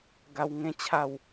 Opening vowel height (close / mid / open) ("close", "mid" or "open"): open